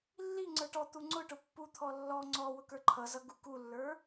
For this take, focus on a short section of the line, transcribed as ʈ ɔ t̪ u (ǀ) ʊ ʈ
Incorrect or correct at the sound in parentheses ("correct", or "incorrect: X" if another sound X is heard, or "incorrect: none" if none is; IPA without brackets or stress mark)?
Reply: incorrect: ŋ͡ǀ